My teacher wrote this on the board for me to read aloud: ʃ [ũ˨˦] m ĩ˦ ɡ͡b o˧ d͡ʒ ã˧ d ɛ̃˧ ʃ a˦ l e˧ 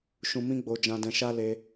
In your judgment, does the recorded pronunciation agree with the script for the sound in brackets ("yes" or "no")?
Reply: no